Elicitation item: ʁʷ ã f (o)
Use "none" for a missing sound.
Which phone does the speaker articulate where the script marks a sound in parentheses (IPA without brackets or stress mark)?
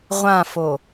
o